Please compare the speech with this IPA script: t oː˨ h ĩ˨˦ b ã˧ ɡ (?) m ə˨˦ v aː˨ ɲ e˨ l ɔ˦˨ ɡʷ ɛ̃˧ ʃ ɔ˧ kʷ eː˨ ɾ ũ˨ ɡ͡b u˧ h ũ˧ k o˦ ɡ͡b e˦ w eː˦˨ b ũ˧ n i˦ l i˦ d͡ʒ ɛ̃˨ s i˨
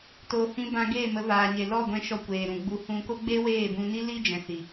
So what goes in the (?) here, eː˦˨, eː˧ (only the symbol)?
eː˦˨